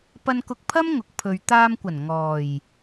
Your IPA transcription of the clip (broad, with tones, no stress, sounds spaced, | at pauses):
p ɐ˧ n k ʊ˧ k̚ pʰ ɐ˥ m ŋ ʊ˨ k̚ pʰ ɵ˨ ɥ t̪ aː˧ m kʷ ɐ˨˩ n ŋ ɔː˨˩ j